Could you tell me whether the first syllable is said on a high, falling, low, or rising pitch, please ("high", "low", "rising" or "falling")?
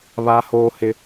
high